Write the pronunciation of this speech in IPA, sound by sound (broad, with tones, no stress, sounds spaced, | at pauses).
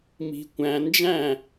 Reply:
m i̤˧ kʷ æ̃˧ n d͡ʒ æ̃˥˧